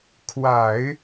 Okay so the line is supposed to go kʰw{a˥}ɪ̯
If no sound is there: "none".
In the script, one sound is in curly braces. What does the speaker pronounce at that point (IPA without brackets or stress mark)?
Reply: a˨˩˦